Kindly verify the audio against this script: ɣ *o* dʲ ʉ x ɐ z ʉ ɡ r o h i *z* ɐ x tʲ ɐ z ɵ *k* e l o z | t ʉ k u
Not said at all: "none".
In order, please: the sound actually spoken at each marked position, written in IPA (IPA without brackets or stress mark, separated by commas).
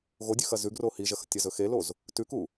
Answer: o, ʒ, x